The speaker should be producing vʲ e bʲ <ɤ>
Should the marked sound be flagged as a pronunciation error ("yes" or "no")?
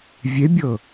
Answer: no